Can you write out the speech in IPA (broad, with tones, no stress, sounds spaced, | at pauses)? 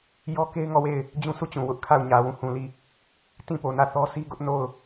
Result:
j ɔ˦ k e˦ ɪ̯ ŋ ɔ˦˨ w e˦˨ ɪ̯ | d͡ʑ ũ˦ sʰ u˦˨ t͡ɕ ũ˨ w ʊ˦ ʔ kʰ a˦˨ ʊ̯ ɲ ä˨ w ũ˦˨ h ũ˨ l i˦˨ | t ĩ˦˨ p o˨ n ä˦˨ θ ɔ˦ sʰ i˦ ɡ ʊ˦ ʔ n o˦˨ ʊ̯